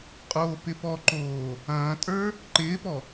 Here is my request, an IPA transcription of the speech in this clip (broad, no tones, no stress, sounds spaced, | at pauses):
qʼ oː p ɪ p ɔ ǃ oː | ɐ̃ː tʼ ə˞ | ǃ ɪː p ɔ